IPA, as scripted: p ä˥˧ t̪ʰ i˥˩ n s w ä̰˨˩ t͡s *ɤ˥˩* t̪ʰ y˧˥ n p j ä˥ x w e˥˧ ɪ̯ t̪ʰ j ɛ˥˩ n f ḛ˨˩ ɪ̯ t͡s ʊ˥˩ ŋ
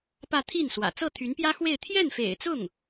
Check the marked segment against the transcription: correct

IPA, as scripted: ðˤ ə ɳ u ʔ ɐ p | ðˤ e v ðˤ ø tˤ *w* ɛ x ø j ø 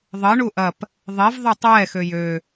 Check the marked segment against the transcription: correct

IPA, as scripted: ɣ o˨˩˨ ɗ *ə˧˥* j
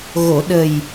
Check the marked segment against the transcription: incorrect: ə˨˩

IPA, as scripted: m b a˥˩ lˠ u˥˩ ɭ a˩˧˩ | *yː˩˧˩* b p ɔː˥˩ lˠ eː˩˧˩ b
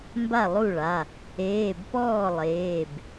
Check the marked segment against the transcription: incorrect: eː˩˧˩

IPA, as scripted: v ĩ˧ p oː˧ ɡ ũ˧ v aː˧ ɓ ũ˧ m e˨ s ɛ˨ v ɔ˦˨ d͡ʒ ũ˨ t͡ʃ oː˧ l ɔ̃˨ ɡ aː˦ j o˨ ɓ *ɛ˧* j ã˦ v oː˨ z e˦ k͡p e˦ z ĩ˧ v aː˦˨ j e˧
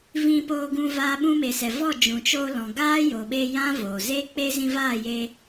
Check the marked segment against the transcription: incorrect: e˧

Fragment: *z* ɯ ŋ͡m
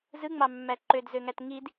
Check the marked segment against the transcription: correct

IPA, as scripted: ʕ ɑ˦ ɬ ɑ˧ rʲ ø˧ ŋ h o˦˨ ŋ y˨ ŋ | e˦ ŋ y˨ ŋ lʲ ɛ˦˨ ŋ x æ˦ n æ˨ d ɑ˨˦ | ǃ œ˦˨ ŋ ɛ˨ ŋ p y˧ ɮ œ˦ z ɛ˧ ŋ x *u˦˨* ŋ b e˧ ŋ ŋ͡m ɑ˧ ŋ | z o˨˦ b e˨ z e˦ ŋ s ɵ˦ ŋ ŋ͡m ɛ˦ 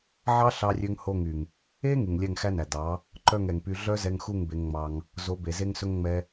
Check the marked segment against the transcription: correct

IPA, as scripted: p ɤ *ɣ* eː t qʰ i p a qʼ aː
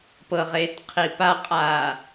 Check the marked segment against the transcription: incorrect: ʁ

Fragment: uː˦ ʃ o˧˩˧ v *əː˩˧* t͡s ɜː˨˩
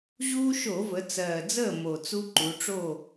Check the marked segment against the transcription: incorrect: ə˩˧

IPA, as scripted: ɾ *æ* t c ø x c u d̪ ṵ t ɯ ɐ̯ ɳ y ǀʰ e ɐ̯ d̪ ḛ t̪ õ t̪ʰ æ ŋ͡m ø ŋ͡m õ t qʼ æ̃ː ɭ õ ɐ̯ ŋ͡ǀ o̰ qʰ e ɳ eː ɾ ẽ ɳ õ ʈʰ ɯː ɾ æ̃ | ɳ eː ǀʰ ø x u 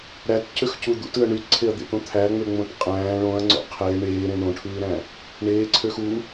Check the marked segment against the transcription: correct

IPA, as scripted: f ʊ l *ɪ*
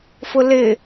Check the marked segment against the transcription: correct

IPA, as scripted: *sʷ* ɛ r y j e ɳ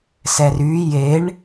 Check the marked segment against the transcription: incorrect: s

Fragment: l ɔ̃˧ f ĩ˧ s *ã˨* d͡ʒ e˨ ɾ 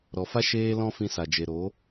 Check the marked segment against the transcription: incorrect: a˨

